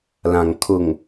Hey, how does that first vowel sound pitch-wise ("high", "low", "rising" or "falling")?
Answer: low